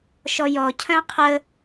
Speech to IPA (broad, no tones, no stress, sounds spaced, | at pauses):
ʃ ɔ j ɔ cʰ œ̃ qʰ ə